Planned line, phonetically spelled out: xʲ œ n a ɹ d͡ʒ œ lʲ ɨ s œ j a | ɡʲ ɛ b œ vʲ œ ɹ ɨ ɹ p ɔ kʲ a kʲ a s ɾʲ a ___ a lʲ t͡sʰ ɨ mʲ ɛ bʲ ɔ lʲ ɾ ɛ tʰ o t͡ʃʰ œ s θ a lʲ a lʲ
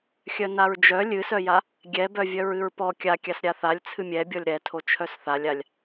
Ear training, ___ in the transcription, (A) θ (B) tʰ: A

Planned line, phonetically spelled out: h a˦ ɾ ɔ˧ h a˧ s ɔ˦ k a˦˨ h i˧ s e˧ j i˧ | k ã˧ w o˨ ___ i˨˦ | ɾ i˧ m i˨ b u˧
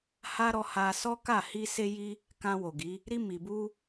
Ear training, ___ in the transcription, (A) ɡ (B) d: A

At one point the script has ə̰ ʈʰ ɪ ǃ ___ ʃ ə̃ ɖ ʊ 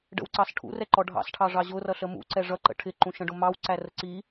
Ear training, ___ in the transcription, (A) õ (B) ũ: B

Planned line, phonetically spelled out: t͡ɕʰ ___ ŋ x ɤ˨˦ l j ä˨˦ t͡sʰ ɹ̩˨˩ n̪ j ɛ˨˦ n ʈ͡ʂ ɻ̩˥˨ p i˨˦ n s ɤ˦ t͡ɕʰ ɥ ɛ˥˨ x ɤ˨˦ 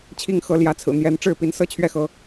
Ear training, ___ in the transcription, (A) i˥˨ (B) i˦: B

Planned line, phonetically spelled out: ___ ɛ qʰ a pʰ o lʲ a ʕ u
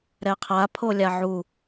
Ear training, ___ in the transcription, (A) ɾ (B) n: A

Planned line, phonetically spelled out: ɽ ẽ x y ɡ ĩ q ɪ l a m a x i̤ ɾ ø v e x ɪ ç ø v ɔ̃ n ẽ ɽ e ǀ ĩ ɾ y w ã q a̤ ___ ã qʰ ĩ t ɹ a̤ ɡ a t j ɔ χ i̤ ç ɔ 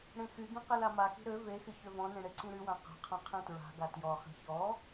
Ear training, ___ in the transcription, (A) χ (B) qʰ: B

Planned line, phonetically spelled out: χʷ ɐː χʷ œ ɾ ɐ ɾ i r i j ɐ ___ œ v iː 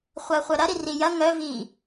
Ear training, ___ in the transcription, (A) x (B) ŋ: B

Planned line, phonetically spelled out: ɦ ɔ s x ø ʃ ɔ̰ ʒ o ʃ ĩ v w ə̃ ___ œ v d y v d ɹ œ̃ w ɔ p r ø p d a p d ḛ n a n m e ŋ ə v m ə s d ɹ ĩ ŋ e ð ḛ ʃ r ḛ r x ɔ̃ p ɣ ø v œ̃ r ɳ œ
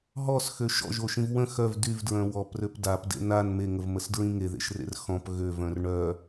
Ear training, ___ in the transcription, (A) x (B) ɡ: A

